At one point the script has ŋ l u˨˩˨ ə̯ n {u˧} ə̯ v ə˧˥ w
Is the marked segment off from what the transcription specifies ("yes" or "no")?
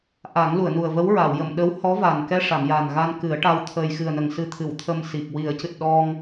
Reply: yes